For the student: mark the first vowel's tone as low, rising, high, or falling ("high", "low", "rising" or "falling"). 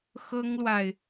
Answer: high